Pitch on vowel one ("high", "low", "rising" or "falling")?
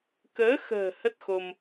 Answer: rising